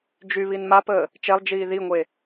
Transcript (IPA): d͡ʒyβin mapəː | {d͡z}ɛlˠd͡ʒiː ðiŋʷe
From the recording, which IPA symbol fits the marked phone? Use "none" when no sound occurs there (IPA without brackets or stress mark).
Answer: t͡ʃ